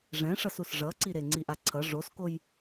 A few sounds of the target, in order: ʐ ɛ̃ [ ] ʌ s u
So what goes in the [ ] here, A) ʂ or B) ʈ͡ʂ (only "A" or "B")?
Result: A